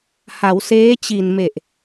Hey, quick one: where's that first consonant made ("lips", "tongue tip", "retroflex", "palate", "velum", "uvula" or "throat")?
throat